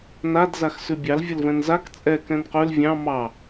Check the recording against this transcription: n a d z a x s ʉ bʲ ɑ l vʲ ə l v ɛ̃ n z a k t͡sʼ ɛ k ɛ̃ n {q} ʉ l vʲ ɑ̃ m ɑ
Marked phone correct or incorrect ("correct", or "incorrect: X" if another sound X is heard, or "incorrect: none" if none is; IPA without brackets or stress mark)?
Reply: correct